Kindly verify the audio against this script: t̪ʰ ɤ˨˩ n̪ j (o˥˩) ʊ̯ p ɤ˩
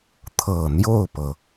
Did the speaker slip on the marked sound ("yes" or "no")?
no